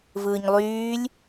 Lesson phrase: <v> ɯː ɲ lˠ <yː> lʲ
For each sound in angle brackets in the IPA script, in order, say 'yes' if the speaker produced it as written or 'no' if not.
yes, yes

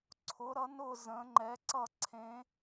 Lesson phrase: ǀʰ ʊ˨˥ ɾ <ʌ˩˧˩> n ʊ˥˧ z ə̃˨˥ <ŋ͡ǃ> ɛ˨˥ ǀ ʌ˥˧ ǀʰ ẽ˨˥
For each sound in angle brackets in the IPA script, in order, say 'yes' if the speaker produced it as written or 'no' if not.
no, yes

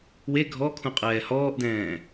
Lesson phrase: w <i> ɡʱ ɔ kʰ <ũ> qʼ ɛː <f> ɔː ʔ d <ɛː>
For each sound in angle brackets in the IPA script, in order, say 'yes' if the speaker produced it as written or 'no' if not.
no, yes, no, no

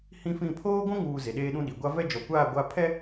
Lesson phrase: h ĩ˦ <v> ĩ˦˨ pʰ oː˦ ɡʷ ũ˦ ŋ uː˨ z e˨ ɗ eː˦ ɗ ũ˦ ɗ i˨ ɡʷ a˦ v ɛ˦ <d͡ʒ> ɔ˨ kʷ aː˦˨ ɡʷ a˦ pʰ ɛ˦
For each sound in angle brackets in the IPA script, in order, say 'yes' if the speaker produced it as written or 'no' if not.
no, yes

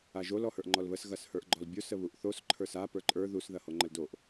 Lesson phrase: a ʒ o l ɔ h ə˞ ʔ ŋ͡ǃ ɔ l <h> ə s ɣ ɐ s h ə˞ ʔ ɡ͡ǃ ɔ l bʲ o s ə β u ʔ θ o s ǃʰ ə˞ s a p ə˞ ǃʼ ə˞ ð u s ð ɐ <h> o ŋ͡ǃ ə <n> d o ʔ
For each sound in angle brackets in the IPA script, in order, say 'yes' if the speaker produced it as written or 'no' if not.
no, yes, no

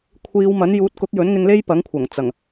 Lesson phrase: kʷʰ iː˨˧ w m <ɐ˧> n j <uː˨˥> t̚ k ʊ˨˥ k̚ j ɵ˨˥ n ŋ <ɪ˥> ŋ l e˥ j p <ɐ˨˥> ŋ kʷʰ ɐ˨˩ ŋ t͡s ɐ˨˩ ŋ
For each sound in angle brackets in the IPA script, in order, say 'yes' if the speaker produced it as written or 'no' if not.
no, yes, no, yes

